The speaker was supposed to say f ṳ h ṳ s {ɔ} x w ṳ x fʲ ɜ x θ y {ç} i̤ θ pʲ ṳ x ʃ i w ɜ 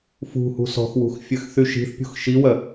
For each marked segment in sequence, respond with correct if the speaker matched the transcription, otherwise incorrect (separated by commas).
incorrect, incorrect